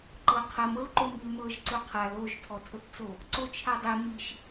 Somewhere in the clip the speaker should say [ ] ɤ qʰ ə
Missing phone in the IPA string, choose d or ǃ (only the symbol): ǃ